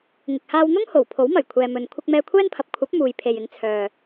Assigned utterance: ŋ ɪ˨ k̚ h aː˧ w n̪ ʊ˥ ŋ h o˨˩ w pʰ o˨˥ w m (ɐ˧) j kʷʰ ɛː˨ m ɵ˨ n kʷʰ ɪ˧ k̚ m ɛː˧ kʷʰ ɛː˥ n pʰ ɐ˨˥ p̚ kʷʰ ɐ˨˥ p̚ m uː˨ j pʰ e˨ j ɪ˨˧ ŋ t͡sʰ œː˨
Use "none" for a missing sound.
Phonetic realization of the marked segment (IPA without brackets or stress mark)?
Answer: ɐ˨˩